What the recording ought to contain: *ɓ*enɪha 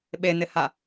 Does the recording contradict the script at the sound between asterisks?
no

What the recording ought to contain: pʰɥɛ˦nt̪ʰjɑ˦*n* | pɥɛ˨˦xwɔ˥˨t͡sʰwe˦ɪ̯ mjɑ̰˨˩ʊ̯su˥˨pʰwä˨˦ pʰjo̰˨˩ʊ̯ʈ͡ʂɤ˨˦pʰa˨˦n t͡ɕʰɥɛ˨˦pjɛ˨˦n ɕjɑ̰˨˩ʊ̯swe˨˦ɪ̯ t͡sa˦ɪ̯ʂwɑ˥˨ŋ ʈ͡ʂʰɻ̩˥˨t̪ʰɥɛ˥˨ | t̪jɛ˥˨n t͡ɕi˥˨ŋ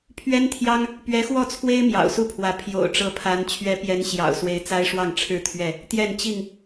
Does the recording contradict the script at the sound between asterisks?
yes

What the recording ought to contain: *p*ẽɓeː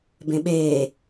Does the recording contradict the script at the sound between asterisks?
yes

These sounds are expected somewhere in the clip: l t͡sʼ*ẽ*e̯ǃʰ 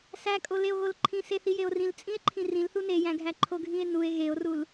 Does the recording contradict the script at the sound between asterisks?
yes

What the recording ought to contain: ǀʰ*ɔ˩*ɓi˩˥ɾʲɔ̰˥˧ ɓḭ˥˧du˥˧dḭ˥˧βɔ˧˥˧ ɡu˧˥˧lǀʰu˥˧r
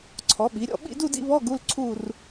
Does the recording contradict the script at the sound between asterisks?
yes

